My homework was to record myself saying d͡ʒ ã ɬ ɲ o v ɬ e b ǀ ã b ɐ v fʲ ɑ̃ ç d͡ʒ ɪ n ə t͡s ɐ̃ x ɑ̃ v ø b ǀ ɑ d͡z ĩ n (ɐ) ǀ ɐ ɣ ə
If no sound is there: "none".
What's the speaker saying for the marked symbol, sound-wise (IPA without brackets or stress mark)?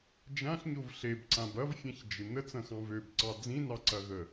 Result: ɑ